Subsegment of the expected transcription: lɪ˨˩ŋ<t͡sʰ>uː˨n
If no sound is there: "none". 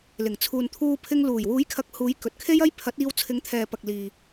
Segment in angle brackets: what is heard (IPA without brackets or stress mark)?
t͡sʰ